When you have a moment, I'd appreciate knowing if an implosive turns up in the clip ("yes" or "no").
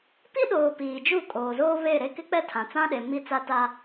yes